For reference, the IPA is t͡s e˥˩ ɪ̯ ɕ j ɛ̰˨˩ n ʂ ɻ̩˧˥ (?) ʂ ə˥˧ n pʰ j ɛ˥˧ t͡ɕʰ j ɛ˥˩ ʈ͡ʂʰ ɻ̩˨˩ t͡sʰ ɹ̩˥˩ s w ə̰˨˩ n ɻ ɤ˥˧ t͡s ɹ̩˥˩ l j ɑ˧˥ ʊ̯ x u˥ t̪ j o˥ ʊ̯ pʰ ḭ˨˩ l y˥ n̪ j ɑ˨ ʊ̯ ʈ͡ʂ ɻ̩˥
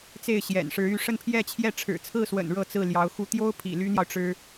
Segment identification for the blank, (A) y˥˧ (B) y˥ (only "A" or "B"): A